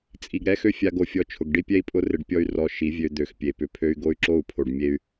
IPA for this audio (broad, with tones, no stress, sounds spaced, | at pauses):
t͡sʼ i˨ ɡ ɾ ɛ˦ x ø˦ fʲ a˧ ɡ o˨ fʲ ɔ˧ t͡ʃʰ ʊ˨ ɡ ɖ i˦ pʲ ɛ˦ i̯ pʼ ʊ˦ r ɪ˧ ɖ pʲ ɔ˦ y̯ r ɔ˧ ʃ i˨˦ vʲ ø˧ d̪ ø˨ x pʲ e˨ p ʏ˧ pʰ ø˦ y̯ ɡ o˦ y̯ ǁ o˦˨ u̯ pʰ o˨ ɖ mʲ e˧ y̯